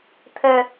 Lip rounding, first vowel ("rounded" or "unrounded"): unrounded